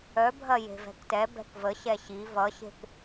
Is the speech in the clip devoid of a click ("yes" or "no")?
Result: yes